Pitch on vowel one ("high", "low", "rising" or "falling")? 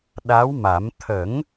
rising